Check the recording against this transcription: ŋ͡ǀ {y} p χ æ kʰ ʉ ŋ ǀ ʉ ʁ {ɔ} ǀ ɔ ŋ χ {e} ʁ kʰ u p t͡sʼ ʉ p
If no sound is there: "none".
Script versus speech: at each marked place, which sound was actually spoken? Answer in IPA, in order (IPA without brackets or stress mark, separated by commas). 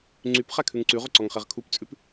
y, ɵ, e